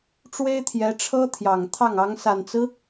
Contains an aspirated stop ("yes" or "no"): yes